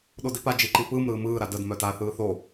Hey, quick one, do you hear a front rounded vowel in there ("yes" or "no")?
yes